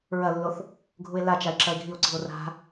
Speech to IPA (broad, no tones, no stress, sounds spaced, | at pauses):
ɹ ɐ lː o θ | ɡʱ u e̯ l a t͡ʃ a e̯ ǁ ɐ e̯ ɡʱ i o̯ ǀ i̤ o̯ r a̤